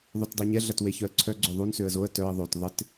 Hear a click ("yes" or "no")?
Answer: yes